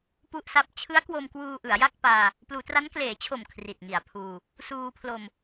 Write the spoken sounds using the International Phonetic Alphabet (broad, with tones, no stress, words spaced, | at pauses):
pu˥˩ʔsa˦˥p̚ t͡ɕʰɯ˦˥a̯kwo˧mkwuː˧ ʔɯ˩˦a̯ja˥˩k̚paː˧ | pluː˩˦tra˦˥nkleː˩˦t͡ɕʰo˨˩m kʰri˨˩t̚ŋi˨˩a̯pʰuː˧ | suː˧pʰlo˧m